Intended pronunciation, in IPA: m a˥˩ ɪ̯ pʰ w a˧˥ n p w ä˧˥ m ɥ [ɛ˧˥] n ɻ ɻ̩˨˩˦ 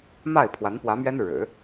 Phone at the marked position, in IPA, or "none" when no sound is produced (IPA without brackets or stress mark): ɛ˥